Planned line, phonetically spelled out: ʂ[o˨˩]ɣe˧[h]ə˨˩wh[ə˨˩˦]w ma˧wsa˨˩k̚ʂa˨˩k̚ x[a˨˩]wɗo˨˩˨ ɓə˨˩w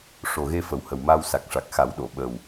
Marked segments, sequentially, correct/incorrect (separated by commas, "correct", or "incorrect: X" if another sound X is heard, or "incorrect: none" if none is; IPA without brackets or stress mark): correct, incorrect: f, incorrect: ə˨˩, incorrect: a˨˩˦